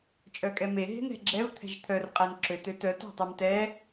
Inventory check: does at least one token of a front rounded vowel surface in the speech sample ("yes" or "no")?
yes